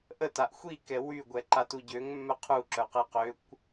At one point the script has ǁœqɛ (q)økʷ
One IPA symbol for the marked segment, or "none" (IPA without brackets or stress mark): q